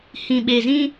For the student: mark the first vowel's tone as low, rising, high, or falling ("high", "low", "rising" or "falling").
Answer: low